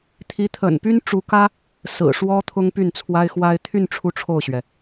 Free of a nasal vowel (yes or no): yes